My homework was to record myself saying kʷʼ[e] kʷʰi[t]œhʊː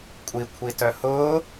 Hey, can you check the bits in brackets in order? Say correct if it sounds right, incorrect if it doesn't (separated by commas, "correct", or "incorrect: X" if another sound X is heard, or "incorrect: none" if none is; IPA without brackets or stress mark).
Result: incorrect: i, correct